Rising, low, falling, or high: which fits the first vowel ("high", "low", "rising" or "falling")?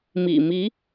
low